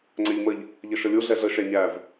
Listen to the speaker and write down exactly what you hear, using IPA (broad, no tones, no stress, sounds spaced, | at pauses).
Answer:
ŋ͡ǀ æ ʎ m ə ʎ | ʎ ʌ ʃ ʌ lʲ u ɮ ɛ ɮ ə ʃ æ ɲ æ v